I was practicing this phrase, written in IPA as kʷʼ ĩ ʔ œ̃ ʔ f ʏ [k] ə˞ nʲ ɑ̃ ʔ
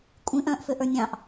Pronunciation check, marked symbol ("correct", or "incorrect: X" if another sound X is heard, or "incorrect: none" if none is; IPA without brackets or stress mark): incorrect: ʔ